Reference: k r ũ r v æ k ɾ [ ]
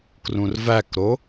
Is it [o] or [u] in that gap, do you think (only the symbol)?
o